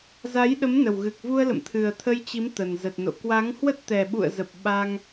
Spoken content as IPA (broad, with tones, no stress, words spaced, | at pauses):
za˨˦jɗə˨˦mnə˨˩w ɣɨ˨˩k̚vu˧ə̯lə̰˧˨mt̪ʰɨ˨˩ə̯ t̪ʰə˧jt͡ɕi˨˦m t̪ə˨˩nzə˨˩t̚no̰˧˨ kwa˨˦ŋhwə˦˥t̚ t̪ɛ˨˩ ɓṵ˧˨ə̯zə˨˩p̚ ɓa˧ŋ